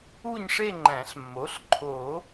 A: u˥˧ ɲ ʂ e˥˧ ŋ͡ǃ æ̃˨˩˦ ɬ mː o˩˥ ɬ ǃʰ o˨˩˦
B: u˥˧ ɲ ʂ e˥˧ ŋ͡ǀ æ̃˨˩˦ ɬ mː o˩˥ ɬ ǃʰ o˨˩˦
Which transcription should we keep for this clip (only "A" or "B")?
A